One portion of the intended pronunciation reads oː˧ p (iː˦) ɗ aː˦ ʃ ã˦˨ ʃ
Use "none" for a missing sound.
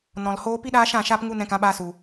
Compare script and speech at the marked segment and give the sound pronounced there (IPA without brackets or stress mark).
i˦